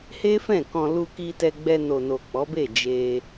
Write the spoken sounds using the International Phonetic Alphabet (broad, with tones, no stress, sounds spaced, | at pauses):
h e˦ f ɛ̃˦˨ k ɔ̃˧ l u˧ k i˧ t ɛ˧ ɡ͡b ɛ˧ n o˨ n o˨ k͡p ɔ˨˦ b e˦˨ d͡ʒ e˧